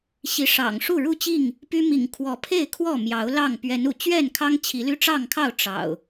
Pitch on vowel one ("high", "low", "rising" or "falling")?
rising